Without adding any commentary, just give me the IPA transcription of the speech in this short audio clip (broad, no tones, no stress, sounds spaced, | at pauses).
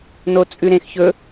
n o t͡sʼ ʉ ɾ ẽ x ç ɵ